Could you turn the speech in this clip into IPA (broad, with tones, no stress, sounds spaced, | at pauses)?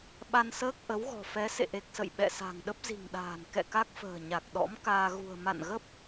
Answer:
ɓ a˧ n s əː˦˥ k̚ ʔ ə˨˦ w ɣ ɔ̤˨˩ f ɛ˨˦ s ḛ˧˨ ʔ e˨˩ k̚ s ə̰˧˨ j ɓ ɛ̰˧˨ s a̤˨˩ ŋ ɗ ə˦˥ p̚ z i̤˨˩ ŋ ɗ a̤ː˨˩ n k ɛ̰˧˨ k a˦˥ k̚ f ə̤ː˨˩ ɲ a˨˩ k̚ ɗ ɔ̰˧˥ m k aː˧ ɣ ṳ˨˩ ə̯ m a̰˧˨ n ɣ ə˦˥ p̚